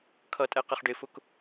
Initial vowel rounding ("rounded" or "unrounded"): unrounded